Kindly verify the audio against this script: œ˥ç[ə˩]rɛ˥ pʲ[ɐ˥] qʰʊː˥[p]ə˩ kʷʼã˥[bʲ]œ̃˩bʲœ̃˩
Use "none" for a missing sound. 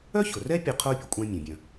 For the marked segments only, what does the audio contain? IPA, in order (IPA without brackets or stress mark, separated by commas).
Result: ʊ˩, ɐ˥, pʲ, mʲ